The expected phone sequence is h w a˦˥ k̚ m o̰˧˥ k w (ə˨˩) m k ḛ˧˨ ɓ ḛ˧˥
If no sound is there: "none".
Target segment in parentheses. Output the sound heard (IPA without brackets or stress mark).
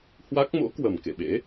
ə˨˩